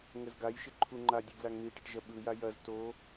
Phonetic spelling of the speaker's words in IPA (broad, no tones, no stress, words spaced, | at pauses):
ŋəzɡajʃɪ ǃʰuŋ͡ǃadʲɯ ɡlaŋn̪iʈɐʈ ʒɐɓɯja jɐz to